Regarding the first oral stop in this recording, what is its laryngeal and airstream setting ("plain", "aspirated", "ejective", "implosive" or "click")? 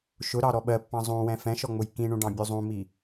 implosive